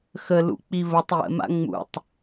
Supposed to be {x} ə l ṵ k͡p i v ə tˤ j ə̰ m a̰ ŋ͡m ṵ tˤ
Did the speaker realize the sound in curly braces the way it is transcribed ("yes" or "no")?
yes